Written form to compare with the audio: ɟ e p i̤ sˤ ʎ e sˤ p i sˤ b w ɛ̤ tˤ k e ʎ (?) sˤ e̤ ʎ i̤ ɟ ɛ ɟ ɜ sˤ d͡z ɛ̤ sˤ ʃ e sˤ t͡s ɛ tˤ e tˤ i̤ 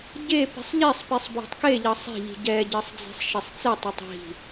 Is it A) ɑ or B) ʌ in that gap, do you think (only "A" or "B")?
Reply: B